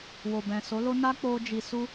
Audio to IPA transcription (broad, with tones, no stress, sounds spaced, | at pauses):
w o˨ b ɛ̃˨ s o˨˦ l o˦ n a˦ k͡p o˦ d͡ʒ i˧ s u˦